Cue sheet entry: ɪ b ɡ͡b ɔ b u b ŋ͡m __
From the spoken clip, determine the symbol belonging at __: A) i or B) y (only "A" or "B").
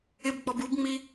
A